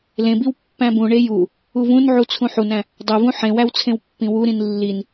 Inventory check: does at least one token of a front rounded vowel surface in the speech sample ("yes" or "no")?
no